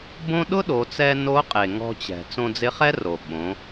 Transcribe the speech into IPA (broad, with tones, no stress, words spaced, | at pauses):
bõ˥ ɗʊ˥ɗo˩˧t͡sɛ˧ no˧˥qʼe˩ ŋɔ̤˧t͡ɕɛ̤˩ t͡sõ˧d͡zɪ˧˥χɛ˥ro˩ ɓõ˩˧